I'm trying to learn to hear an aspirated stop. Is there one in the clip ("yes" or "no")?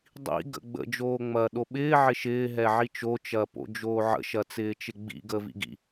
no